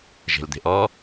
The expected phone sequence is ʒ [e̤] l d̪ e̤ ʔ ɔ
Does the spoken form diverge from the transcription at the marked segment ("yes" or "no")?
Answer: no